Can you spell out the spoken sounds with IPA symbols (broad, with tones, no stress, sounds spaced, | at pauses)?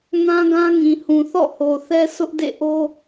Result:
ŋ ã˦ ɡ ã˦ ŋ ĩ˨ h ũ˨ θ ɔ̰˦˨ h o˨ θ ɛ˦ sʰ ʊ˦ ʔ d ḛ˦˨ ʔ o˦